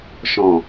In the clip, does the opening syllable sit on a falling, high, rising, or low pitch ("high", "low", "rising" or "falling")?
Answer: low